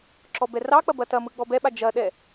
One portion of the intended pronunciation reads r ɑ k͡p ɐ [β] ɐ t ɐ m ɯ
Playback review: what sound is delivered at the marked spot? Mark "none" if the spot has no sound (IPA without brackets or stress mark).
b